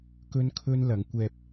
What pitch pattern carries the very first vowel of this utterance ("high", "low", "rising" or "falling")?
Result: high